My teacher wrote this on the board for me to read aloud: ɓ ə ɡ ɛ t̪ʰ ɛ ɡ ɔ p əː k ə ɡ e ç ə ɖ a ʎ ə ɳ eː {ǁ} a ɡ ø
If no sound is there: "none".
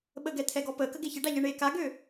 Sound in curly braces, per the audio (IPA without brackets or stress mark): k